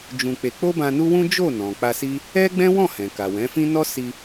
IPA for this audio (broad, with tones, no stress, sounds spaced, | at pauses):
d͡ʒ ũ˧ k͡p e˧ k͡p o˦ b ã˧ n u˦ w ũ˦ d͡ʒ o˦˨ n ɔ̃˨ k͡p a˧ s i˦ | ɛ˦ ɡ͡b ɛ̃˦ w ɔ̃˦˨ h ɛ̃˨ k a˨ w ɛ̃˨˦ f ĩ˦ n ɔ˦ s i˧